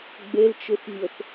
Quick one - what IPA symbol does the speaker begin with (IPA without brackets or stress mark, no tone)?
ɡ͡b